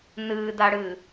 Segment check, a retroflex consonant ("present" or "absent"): present